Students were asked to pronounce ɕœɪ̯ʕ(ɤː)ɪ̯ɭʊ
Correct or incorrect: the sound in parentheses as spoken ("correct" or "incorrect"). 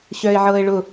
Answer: correct